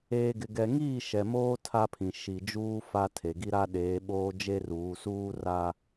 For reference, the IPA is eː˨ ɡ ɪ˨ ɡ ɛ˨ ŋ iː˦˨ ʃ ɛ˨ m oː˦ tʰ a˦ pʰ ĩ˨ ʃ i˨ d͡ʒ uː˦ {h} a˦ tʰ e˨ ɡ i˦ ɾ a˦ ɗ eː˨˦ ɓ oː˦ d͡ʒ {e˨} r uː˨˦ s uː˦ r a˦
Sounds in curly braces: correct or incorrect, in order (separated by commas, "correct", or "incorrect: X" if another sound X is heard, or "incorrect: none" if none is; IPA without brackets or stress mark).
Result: incorrect: f, incorrect: e˦